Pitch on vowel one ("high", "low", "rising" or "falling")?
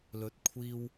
rising